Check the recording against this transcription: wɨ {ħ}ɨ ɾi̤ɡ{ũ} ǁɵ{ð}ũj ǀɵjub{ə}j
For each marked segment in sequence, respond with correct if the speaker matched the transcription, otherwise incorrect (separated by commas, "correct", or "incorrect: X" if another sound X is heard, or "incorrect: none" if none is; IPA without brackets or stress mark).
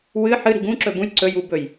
correct, correct, incorrect: b, incorrect: ɵ